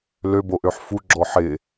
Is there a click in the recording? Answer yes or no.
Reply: yes